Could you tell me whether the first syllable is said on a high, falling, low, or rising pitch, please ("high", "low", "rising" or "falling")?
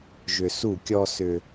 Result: low